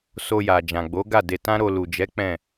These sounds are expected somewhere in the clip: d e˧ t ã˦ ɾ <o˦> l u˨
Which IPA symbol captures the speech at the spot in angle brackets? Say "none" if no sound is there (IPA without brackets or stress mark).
o˧